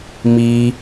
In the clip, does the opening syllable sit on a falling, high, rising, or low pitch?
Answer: high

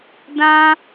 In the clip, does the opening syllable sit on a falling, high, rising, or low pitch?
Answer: high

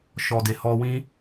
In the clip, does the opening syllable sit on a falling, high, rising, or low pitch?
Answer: low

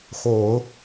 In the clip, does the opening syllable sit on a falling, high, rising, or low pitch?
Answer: low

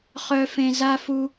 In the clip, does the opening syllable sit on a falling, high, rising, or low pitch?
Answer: high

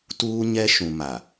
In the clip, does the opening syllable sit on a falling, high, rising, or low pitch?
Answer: high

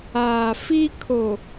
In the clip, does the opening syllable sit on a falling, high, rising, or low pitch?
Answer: low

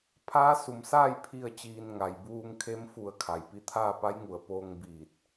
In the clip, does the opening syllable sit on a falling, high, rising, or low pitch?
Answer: rising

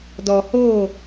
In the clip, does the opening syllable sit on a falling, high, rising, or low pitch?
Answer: low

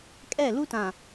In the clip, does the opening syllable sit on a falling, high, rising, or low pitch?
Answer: falling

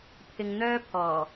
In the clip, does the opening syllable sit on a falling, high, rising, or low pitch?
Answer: low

